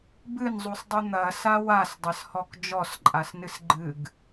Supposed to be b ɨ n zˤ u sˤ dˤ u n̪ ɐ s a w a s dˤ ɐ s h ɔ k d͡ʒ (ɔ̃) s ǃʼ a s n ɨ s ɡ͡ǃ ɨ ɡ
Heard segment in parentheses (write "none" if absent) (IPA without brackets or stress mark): ɔ